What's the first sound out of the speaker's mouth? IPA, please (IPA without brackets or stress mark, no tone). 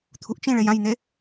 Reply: t̪ʰ